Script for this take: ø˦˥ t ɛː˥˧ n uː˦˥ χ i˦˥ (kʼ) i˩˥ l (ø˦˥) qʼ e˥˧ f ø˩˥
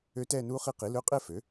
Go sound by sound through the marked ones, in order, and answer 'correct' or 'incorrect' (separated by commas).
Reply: incorrect, incorrect